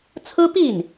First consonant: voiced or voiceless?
voiceless